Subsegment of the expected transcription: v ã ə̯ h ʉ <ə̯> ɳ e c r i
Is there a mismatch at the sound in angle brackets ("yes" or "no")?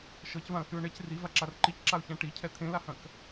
yes